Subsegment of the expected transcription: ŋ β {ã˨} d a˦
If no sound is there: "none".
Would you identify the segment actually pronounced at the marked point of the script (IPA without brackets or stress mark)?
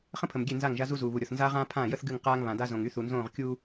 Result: ã˨